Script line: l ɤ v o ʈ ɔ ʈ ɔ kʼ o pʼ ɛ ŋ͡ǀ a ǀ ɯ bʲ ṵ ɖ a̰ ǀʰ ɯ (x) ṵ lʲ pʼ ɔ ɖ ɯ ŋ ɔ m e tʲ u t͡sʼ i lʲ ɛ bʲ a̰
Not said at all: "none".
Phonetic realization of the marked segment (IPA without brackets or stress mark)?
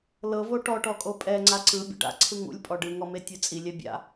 ŋ